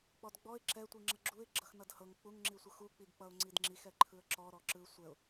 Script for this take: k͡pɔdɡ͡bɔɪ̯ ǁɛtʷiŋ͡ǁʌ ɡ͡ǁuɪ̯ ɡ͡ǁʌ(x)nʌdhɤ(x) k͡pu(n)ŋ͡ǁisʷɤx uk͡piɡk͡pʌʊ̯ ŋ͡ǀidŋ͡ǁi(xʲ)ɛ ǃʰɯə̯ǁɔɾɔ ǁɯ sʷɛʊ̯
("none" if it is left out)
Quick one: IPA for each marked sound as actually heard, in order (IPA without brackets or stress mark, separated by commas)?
x, ŋ, ŋ, x